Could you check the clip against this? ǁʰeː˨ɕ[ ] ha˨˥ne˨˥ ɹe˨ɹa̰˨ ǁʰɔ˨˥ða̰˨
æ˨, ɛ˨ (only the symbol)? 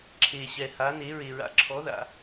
ɛ˨